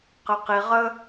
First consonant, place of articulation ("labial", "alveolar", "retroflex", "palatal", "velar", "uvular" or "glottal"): uvular